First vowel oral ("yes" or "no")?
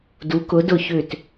yes